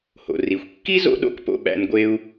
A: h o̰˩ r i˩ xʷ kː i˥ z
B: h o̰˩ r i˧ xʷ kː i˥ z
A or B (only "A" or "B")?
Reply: A